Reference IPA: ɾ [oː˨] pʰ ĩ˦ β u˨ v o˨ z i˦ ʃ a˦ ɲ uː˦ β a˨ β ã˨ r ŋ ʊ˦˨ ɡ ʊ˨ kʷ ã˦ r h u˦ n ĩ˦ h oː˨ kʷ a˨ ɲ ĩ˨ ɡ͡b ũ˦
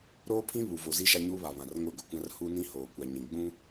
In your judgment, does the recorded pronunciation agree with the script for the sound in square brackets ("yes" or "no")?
no